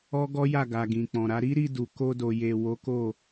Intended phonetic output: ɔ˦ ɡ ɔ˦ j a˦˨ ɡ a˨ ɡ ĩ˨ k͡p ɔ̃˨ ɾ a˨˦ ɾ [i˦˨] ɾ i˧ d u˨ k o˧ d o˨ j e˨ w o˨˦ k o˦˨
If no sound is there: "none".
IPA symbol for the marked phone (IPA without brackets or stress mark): i˦